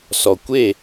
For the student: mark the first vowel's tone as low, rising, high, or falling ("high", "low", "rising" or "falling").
low